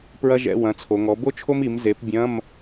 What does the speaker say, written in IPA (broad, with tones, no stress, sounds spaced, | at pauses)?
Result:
p ɹ ɐ˥ ʒ ɛ̰˧˥˧ w ɐ̃˩˥ t͡sʰ o˩˧ ŋ ɔ˩˥ b o˥ t͡ʃʰ o˥ m i˩˥ m z e˩˥ p bʲ ɐ̃˧˥˧ m